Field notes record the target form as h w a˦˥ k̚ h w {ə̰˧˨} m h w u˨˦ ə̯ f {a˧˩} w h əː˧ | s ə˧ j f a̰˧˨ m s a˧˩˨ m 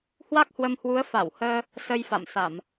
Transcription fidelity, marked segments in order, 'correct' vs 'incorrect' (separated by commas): incorrect, correct